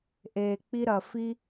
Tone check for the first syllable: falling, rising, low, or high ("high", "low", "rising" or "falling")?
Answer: low